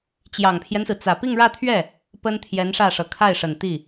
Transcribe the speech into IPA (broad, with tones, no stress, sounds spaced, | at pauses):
t͡ɕ j ɑ˨˩ ŋ pʰ j ɛ˦ n s ɹ̩˩ t͡s ä˨˩ p i˥˧ ŋ ɻ ä˥˧ t̪ʰ ɥ ɛ˥˩ | p ə˥ n t̪ʰ j ɛ˧˥ n ʂ ä˥˩ ʂ ɤ˨˩ kʰ a˥˩ ɪ̯ ʂ ə˨˩ n t̪ i˥˩